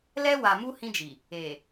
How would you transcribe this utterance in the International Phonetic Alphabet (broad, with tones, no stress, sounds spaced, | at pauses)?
l ɛ˦ w a˨ m u˦ h ĩ˦ d͡ʒ i˨ | e˨